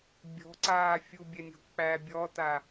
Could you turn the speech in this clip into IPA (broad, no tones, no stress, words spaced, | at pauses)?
bʲɔ̤ǀaː fʲubʲɛnʲo̤ k͡pæ bʲɔta